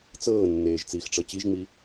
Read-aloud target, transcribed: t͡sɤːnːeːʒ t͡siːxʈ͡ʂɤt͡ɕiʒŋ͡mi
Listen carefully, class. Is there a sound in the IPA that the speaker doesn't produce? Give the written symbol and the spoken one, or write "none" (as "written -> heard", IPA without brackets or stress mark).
none